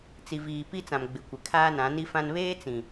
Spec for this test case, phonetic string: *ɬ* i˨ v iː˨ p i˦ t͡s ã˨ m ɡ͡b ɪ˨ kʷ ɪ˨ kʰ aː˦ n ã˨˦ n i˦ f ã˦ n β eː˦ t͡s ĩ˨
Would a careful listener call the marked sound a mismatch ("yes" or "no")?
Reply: yes